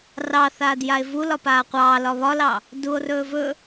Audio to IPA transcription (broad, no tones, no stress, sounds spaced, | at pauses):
r ɑ θ aː d j a e̯ v u l ɒ p aː qʷ ɑː l ɒ β ɒ l ɑ | d u o̯ r ɵː v ɵ